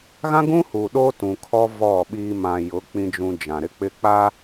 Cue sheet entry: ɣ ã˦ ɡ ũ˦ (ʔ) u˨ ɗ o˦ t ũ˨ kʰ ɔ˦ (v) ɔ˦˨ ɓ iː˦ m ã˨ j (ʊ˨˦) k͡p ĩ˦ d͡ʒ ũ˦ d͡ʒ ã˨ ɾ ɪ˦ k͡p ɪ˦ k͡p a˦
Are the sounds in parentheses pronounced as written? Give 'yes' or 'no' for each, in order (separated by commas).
no, yes, yes